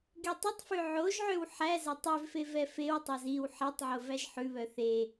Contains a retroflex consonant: no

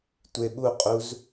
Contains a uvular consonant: yes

